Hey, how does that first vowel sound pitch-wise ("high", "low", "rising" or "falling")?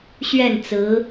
falling